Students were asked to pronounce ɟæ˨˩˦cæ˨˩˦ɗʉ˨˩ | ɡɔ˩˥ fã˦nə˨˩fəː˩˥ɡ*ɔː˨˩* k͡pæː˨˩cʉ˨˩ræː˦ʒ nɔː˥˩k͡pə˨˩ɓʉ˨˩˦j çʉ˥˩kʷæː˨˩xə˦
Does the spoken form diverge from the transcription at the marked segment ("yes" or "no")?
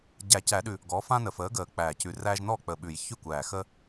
yes